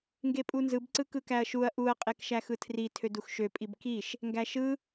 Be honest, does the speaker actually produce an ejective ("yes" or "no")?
yes